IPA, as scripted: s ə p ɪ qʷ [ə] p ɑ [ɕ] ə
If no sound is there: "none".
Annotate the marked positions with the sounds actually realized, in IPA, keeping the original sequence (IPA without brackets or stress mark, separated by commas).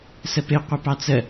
ə, t͡s